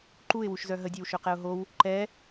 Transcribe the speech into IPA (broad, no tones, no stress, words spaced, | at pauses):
ǃuɪ̯wuʃzœ ɦədʲøwʃøqɛʊ̯ ɦow | ǃɛ